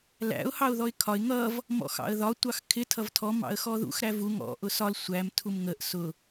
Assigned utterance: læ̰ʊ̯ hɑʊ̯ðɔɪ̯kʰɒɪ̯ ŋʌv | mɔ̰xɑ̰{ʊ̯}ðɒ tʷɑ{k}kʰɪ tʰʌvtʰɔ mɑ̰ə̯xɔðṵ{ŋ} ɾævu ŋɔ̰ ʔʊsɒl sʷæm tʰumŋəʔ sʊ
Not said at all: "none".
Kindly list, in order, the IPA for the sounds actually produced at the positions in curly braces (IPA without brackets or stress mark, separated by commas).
ə̯, x, x